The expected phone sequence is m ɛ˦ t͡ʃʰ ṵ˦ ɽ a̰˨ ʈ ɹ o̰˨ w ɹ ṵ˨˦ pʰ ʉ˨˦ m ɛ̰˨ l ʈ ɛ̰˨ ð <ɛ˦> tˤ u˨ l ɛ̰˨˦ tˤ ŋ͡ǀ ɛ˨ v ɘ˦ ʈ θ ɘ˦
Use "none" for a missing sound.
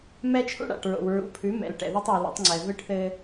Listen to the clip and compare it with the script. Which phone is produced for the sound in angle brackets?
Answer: ɛ˦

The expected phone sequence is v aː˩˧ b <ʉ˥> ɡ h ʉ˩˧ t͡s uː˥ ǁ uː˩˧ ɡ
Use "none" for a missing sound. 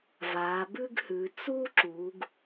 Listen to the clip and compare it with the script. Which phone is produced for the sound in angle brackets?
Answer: ʉ˥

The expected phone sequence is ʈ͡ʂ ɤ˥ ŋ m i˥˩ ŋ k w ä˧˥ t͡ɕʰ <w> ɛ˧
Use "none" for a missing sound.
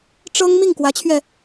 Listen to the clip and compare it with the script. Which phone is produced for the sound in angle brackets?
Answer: ɥ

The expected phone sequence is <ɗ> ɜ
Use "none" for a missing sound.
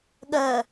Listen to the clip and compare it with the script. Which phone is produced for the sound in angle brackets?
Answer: ɠ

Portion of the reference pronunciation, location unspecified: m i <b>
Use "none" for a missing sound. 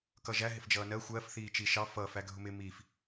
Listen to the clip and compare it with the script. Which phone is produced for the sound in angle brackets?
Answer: f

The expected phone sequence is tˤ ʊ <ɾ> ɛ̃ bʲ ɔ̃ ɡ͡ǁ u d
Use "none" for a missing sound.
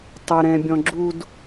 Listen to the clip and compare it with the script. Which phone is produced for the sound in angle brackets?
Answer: ɾ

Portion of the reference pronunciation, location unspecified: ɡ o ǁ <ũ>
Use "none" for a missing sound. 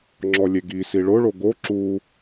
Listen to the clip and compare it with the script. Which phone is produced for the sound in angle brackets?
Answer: u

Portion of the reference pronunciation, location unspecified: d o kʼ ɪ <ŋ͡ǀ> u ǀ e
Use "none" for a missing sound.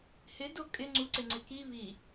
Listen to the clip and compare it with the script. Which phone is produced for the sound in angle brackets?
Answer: ŋ͡ǀ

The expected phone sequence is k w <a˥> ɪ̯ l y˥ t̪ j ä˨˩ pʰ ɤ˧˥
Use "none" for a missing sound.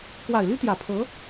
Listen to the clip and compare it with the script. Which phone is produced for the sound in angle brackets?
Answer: a˨˩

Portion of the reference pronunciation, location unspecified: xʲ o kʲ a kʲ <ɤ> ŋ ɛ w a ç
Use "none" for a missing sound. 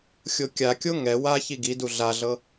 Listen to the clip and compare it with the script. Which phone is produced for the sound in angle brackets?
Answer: o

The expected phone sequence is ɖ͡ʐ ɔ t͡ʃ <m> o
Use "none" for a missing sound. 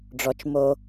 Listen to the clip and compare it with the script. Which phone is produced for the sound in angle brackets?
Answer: m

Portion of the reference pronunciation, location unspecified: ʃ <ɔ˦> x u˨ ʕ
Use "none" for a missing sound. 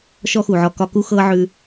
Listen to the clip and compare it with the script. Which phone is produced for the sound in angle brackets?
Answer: ɔ˦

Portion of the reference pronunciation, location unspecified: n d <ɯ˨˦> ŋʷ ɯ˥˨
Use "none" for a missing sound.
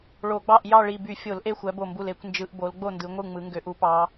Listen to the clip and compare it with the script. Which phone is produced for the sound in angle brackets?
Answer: ɯ˨˦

